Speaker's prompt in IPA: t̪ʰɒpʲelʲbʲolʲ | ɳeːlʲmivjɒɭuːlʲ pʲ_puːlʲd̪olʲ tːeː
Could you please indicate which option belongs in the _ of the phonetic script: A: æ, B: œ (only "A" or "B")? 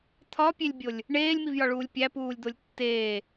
A